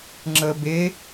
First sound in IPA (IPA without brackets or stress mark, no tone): ŋ͡ǁ